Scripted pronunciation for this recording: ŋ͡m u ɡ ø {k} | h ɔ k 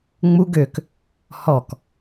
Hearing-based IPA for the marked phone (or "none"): k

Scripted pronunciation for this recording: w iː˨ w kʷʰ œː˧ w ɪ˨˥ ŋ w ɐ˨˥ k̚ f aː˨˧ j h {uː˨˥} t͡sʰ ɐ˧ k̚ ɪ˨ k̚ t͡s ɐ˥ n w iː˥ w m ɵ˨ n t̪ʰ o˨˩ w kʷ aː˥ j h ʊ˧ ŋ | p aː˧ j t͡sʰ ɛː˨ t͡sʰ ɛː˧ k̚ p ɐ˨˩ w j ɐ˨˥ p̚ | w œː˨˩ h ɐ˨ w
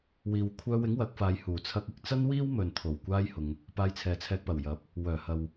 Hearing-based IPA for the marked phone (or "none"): uː˨˩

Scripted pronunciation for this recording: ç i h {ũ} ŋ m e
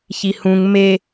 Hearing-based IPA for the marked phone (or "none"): ũ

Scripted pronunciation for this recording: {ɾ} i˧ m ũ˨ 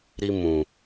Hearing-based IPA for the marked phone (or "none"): ɾ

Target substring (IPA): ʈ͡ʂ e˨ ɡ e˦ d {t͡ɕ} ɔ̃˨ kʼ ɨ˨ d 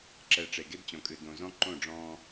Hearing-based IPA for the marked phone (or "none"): t͡ɕ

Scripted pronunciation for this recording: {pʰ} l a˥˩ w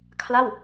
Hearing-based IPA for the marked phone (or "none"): kʰ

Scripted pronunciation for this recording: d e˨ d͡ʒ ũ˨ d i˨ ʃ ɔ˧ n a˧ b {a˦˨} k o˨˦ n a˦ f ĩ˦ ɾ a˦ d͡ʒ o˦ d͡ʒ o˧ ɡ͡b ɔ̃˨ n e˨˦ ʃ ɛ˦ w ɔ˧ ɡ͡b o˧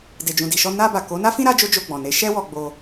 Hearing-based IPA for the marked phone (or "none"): a˨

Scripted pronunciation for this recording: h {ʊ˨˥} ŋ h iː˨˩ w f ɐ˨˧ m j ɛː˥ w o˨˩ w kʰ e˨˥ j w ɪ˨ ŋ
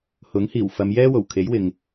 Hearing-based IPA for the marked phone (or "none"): ʊ˨˥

